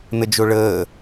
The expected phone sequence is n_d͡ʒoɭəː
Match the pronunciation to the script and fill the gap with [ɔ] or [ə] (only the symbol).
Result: ə